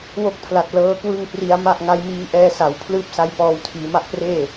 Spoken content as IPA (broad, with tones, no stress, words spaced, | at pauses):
wo˥˩k̚pʰla˨˩t̚ lɤː˦˥kwɯ˥˩ŋpri˧a̯ ma˥˩ʔŋa˦˥jmiː˦˥ ʔɛː˧sa˩˦w pʰlɯː˦˥p̚sa˦˥j pɔː˧w tʰiː˩˦ma˥˩ʔpreː˥˩